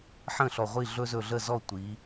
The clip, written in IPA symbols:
ħə̃˥˩ɬɔ˧˩ʁʷi˥˩ ɮɵ˦zɵ˧˩ɮə˥˩zɔ˥˩ tʷi˩˧

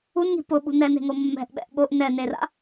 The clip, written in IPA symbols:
unŋi̤ pʊɓṳ nɛne̤ŋo mːɛ̤ʔɓɛ̰ʔ ɓoʔ nɛnera̰

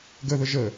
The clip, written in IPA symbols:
ɡəðə ʒə

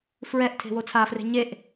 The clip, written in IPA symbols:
fɹɛʔ tʰe̤wot͡sʰafre̤ ɲeʔ

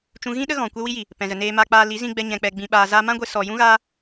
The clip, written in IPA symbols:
t͡ʃũ˧ɣĩ˦ɗə˦ɣɔ̃˨ kʷɛ˧wi˧ji˨ | pɛ̃˨zə˨ neː˨ma˨k͡paː˨ li˨˦zĩ˧ɡ͡bɛ˧ ɲɛ̃˧k͡pɛ˧ ɡ͡bĩ˧ɓaː˧ zaː˧mã˦ɡʷe˧ sɔ˨jũ˧ɣaː˧

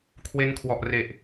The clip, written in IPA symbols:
kʰwe˦˥nkʰwɔ˨˩ʔre˨˩ʔ

